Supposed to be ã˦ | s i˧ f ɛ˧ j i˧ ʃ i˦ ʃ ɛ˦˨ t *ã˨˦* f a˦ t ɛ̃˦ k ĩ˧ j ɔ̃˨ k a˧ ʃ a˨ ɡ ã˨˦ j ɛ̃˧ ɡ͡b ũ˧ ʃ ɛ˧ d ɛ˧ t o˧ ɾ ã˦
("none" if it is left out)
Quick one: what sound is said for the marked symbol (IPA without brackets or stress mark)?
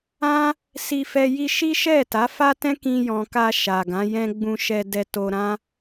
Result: a˨˦